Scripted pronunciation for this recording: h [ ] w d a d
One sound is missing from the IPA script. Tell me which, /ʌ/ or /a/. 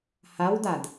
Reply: a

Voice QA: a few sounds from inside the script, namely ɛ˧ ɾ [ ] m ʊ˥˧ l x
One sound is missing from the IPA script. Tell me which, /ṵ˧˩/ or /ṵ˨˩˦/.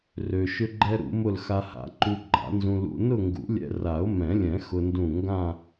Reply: ṵ˨˩˦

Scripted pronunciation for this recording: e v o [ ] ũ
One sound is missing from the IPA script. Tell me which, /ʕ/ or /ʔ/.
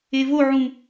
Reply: ʕ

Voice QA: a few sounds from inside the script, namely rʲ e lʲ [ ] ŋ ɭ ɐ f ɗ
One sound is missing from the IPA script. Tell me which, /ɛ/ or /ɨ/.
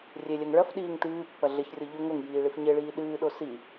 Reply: ɛ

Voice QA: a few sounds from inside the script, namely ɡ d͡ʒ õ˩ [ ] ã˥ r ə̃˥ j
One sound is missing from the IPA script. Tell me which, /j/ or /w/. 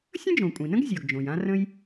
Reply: j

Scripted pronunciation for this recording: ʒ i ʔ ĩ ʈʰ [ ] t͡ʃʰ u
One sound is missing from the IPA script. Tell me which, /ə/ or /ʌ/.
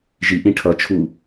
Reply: ʌ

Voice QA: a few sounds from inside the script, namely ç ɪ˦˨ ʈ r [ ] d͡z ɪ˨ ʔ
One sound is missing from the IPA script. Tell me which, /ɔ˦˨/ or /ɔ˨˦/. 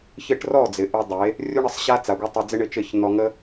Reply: ɔ˦˨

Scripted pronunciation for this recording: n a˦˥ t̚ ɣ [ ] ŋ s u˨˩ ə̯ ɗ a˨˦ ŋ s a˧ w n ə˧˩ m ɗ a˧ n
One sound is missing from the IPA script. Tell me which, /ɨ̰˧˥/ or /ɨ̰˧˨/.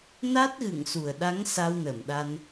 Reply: ɨ̰˧˨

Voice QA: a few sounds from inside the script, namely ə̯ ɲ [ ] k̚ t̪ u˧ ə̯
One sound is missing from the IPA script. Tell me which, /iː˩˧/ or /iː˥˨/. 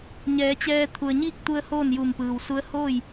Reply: iː˥˨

